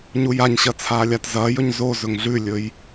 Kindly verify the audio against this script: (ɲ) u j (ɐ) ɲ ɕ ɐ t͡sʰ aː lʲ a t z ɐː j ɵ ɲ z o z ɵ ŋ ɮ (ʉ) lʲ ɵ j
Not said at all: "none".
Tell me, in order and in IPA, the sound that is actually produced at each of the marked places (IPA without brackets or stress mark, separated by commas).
ɲ, a, ʉ